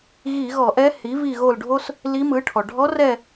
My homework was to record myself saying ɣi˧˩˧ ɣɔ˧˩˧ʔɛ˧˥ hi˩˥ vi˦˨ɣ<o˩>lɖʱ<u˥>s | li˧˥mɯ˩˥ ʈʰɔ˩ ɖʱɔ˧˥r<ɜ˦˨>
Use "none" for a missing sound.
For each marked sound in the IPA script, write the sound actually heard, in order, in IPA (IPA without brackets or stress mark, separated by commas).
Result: o˦˨, o˥, ɛ˦˨